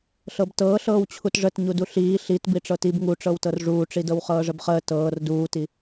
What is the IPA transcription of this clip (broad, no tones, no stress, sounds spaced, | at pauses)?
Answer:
ɬ ɤ b t ɤː ɬ ɤː w t͡ɕʰ u t ʐ ə t ɲ u d u ɬ iː ɬ i t b i ʈ͡ʂ ɤ t i b ŋ u ʈ͡ʂ ɤ w t ɤ r ʐ uː ʈ͡ʂ i d ɤ w χ ɤː ʐ ə b χ əː t ɤː r d uː t i